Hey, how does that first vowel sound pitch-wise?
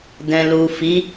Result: low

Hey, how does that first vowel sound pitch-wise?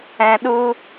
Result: low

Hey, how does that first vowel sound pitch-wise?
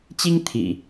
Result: high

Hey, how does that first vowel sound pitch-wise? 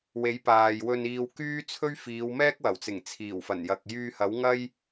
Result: rising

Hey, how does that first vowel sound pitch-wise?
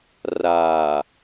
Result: low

